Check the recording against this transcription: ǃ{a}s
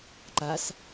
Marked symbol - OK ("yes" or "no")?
yes